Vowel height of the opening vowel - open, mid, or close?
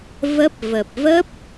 mid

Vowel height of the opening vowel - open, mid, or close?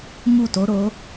close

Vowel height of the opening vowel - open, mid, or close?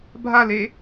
open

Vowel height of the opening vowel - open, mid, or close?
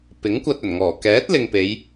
close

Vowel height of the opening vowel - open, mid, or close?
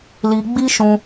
close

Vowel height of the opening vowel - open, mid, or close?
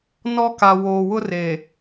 mid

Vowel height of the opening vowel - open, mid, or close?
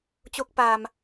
mid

